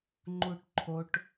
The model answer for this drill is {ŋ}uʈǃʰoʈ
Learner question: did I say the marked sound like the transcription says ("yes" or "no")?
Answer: no